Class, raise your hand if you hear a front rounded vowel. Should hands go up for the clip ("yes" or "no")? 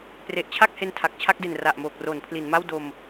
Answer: no